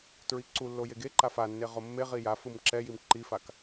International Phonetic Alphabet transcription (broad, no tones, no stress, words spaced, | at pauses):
tɹiǀulːo jeɡeǃa fanːe ʁomːeʁi ja fɯmǁɛjim ǃifak